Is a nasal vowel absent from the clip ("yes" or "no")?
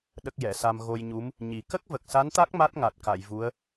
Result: yes